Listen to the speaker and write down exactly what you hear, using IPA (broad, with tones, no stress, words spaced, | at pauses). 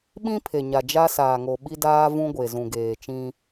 ɓĩ˦pʰe˨ɲa˨ d͡ʒa˦saː˨ŋo˨ ɓi˦daː˦vũ˦ɡʷe˨ zũ˨ɡeː˨t͡ʃĩ˦